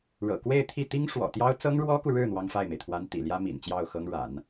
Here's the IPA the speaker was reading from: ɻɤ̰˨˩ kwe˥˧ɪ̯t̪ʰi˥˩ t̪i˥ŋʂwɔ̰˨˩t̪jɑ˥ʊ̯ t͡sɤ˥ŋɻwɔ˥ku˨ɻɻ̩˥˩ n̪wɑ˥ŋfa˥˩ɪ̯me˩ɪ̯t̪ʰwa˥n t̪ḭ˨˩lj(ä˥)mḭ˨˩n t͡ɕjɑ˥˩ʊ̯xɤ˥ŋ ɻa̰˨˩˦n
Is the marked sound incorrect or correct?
correct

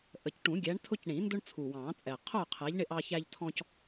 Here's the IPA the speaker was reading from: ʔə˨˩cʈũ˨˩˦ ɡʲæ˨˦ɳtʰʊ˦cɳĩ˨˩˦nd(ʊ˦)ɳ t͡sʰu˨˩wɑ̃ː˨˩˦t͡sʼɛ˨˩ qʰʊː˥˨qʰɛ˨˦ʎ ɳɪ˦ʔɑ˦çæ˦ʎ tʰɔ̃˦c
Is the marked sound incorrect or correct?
correct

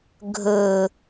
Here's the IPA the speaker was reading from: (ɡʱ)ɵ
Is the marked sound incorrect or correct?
correct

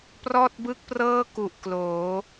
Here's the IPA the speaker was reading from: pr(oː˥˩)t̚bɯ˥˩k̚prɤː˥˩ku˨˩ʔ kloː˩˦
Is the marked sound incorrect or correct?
incorrect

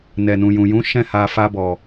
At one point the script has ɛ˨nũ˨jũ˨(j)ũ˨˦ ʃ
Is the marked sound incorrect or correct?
correct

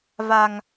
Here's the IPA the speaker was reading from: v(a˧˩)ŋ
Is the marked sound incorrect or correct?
incorrect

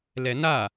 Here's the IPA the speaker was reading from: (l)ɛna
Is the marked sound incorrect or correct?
correct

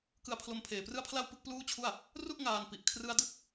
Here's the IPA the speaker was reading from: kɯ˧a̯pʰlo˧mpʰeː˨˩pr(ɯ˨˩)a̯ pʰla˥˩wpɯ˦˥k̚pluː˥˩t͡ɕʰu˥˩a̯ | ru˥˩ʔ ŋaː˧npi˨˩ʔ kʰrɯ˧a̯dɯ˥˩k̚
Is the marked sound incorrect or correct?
incorrect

